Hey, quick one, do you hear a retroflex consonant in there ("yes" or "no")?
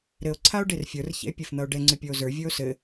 yes